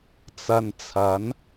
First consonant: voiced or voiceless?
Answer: voiceless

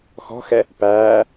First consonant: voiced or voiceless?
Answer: voiceless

